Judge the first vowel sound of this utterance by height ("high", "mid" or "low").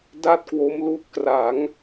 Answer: low